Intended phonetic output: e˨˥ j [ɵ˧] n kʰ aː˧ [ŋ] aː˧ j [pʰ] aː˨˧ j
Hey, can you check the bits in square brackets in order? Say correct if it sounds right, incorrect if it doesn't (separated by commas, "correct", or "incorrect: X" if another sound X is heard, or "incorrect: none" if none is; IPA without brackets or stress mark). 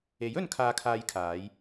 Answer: correct, incorrect: kʰ, incorrect: kʰ